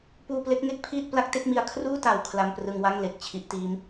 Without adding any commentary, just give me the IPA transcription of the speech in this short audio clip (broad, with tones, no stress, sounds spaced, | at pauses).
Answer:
p uː˧ p l e˦˥ k̚ ŋ e˦˥ k̚ pʰ iː˥˩ t̚ p l a˦˥ k̚ t e˥˩ k̚ m i˧ a̯ kʰ r uː˥˩ t a˨˩ w kʰ l a˧ m p r ɯ˧ ŋ w a˥˩ ŋ l e˨˩ k̚ t͡ɕʰ i˦˥ ʔ t iː˦˥ m